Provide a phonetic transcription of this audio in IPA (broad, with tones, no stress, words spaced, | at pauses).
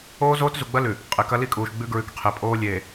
oː˦zoː˦tzu˨ɡ͡bɐ˦ lʉ˨ | qʼe˨kɐ˦li˦kʼuː˨ʃ ɡ͡bʉ˦ɡɹʉ˨kqʰe˨pʼoː˦ lʲeː˨